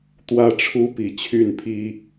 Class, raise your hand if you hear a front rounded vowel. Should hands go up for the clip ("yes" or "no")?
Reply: yes